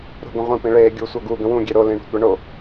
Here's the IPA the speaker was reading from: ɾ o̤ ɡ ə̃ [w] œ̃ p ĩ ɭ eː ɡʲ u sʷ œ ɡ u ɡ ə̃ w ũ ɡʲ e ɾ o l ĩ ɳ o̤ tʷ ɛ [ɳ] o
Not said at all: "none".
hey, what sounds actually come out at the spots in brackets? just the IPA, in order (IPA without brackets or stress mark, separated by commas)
ʁʷ, ɳ